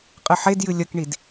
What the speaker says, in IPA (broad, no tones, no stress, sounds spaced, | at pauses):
qʼ ɨ ħ e d j ɨ lʲ ɐ k ɳ i d